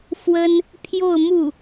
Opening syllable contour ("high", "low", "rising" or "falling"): high